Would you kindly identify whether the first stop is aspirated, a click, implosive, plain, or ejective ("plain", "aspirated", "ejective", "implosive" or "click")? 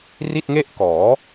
plain